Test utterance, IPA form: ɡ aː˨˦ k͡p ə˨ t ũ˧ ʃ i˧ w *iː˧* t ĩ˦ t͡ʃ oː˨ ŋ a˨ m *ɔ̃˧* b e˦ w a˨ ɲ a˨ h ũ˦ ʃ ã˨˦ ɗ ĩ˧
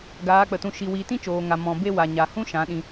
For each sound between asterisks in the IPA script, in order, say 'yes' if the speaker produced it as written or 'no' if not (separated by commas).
yes, yes